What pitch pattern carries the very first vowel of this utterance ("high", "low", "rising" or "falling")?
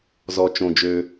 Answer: low